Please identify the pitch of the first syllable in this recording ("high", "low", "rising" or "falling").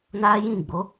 high